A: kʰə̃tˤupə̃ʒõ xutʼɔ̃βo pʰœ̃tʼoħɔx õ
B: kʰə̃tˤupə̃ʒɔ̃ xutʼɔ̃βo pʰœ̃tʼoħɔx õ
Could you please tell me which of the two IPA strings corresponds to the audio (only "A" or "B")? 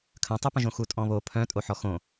A